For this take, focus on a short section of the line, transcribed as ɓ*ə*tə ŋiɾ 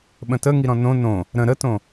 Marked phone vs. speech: incorrect: ə̃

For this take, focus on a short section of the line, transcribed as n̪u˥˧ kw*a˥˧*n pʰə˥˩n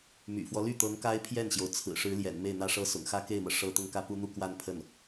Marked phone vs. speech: correct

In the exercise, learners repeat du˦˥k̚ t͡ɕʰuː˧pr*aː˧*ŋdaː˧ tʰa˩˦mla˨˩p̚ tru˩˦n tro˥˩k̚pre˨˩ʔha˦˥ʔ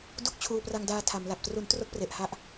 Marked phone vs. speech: incorrect: a˧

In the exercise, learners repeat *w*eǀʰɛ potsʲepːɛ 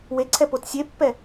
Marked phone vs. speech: correct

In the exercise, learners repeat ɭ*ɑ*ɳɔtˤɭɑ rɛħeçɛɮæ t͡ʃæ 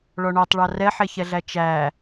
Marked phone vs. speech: incorrect: ɔ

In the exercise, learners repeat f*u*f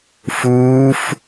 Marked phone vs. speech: incorrect: uː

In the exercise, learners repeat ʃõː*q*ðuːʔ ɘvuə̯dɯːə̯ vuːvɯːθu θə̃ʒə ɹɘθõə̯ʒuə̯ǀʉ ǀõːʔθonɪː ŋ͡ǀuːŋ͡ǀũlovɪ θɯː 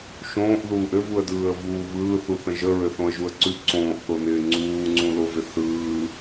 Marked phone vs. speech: incorrect: ʔ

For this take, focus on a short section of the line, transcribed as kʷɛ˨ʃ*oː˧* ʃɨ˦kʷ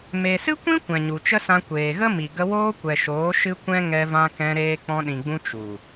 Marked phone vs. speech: incorrect: oː˨˦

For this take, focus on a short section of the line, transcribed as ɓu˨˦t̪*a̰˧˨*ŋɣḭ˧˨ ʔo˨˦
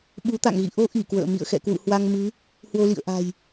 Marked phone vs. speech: correct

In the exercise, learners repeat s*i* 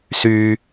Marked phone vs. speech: incorrect: y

